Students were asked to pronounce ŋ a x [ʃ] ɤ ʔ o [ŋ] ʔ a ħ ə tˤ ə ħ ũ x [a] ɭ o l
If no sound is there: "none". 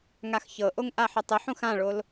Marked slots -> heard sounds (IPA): ç, ŋ, ã

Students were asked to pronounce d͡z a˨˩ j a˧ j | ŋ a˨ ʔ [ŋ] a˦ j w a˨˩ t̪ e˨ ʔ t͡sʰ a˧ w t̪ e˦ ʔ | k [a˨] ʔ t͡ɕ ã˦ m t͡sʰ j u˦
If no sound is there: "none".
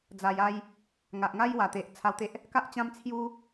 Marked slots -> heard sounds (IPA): ŋ, a˦

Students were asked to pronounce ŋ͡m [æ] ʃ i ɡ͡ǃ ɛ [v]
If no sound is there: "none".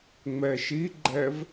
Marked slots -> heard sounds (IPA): ɛ, v

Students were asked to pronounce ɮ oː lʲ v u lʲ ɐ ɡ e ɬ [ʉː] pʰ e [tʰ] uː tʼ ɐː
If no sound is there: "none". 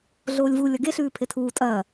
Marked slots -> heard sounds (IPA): ʉː, tʰ

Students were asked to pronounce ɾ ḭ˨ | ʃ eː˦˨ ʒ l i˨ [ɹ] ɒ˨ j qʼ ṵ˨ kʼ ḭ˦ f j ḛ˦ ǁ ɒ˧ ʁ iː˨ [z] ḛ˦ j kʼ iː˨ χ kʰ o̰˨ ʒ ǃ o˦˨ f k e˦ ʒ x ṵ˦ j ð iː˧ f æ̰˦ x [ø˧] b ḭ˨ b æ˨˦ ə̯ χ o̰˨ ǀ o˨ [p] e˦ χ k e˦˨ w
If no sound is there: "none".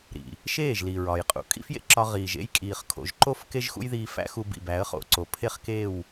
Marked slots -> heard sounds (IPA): ɹ, ʒ, u˧, pʰ

